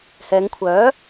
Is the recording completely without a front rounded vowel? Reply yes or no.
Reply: no